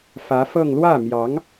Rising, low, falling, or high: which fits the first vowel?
rising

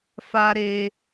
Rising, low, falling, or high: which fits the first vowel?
high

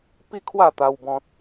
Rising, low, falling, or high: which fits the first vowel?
falling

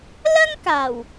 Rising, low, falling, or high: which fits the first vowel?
high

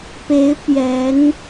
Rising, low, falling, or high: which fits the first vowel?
rising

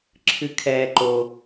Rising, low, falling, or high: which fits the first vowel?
low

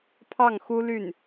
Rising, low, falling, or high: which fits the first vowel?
falling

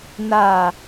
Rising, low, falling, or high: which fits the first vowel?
low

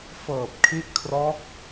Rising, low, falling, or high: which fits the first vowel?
low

